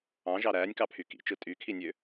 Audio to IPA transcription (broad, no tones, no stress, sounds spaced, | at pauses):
ɑ̃ ʒ ɑ ɾ æː nʲ k ɑ pʰ y k ḭ t͡ʃ ɯ tʼ y kʰ i nʲ ø